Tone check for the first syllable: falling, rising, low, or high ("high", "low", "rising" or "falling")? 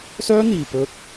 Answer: high